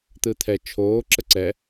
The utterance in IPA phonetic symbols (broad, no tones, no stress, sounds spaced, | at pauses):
t̪ ɯ t̪ʰ ɛ t͡ʃʰ oː ǁ ə ǀ ɛ